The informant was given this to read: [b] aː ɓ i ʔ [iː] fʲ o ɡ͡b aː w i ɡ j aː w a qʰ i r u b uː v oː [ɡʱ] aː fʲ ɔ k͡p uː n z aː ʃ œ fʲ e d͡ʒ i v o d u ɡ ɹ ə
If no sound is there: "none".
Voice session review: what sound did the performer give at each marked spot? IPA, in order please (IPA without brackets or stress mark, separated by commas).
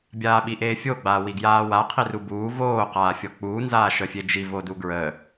bʲ, eː, q